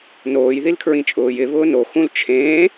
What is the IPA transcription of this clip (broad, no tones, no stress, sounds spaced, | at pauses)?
n oː j ð i l kʰ ɹ ĩ t͡ʃʼ ʊː j ɪ β ʊː n o x ũ l t͡ʃʰ ẽː